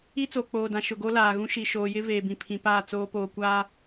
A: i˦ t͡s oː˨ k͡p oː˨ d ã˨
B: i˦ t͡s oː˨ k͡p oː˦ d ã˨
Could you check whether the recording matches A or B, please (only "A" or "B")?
A